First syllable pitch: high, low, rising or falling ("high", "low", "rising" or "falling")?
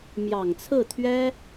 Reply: low